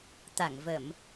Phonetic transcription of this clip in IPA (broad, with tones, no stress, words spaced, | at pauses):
t̪a˧˩ŋvə˧˩˨m